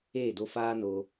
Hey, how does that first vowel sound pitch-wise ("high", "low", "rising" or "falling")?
falling